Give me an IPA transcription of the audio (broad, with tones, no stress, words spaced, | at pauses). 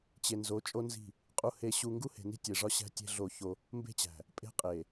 t͡ɕe˨nzo˨˦ t͡ʃʼo˦nzi̤˦˨ | qʼu˦he˦ ɕu˦ ŋɡu˦he̤˨ni̤˦ tʲe˨ʐɒ˦ɕæ̤˦ tʲe̤˦ɮo˦˨ço˦ | mbe̤˦t͡ɕæ̤˨ | pʼe̤˦qʼe˨